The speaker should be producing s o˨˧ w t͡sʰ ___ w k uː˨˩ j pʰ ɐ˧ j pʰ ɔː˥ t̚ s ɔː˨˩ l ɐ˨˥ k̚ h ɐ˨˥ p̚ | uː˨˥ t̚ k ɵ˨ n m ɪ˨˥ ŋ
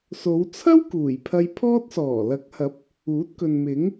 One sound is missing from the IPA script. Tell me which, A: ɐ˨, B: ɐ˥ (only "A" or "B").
B